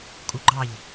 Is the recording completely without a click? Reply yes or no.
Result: no